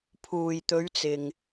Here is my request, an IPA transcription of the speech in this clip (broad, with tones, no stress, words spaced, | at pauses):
pʰuː˨jt̪ɵ˨˧ɥt͡sɪ˨ŋ